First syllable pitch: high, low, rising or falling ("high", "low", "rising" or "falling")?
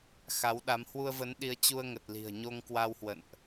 rising